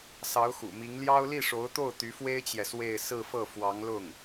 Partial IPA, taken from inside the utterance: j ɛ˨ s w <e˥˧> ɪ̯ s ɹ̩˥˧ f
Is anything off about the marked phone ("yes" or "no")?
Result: no